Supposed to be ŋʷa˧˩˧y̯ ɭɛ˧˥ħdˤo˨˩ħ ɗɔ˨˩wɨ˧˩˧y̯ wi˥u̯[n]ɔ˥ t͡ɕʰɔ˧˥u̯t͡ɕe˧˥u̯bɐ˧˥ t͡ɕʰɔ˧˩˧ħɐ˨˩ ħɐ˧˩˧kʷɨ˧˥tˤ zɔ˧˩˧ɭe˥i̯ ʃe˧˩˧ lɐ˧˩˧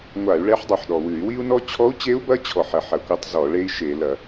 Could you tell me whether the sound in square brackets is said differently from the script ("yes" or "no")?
no